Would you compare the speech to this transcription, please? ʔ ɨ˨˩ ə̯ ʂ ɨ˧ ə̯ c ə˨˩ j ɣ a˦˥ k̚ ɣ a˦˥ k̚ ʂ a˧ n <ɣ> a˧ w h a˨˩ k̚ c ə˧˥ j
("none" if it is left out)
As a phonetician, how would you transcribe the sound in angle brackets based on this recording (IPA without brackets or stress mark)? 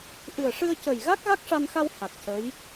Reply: x